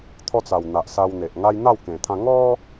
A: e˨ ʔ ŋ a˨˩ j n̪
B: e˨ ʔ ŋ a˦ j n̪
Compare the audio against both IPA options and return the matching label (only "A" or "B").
B